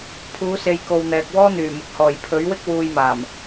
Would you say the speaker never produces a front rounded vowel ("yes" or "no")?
no